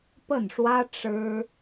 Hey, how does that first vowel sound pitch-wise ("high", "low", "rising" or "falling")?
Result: falling